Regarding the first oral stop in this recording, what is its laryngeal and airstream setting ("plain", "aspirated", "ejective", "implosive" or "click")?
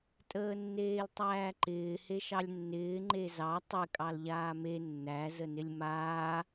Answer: ejective